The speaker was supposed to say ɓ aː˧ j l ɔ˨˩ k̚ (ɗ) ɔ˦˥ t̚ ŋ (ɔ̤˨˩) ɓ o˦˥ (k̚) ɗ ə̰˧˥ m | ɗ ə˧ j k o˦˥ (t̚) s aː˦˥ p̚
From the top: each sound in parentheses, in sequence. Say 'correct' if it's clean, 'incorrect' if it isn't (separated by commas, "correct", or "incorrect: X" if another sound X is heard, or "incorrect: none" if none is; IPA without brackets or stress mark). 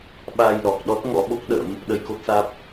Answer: correct, incorrect: ɔ̰˧˥, correct, correct